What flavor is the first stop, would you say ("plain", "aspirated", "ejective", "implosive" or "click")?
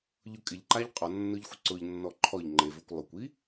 ejective